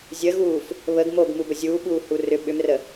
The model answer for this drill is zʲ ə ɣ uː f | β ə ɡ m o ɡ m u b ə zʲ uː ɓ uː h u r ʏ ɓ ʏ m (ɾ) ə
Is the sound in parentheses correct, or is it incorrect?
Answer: incorrect